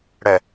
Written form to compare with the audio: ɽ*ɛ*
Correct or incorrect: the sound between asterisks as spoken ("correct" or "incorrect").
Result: correct